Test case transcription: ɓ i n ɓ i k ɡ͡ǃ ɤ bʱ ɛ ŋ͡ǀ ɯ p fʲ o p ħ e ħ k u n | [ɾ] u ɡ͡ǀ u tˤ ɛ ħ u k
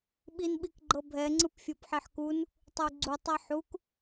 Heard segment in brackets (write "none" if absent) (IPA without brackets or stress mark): tˤ